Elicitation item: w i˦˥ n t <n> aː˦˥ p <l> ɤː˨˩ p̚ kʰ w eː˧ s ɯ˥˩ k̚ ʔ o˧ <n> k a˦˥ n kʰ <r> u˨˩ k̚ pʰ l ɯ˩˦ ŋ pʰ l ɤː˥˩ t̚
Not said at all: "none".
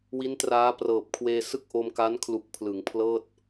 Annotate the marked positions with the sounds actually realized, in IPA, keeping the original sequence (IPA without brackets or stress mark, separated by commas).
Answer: r, r, m, l